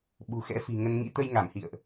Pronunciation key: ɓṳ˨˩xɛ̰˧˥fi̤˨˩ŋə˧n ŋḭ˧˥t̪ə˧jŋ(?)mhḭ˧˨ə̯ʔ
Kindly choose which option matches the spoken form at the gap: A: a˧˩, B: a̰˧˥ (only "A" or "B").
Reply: A